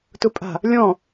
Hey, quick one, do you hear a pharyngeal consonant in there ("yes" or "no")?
no